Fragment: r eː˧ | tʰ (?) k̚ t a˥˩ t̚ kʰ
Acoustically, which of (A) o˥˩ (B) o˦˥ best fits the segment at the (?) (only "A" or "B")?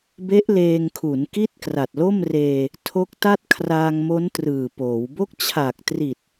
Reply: B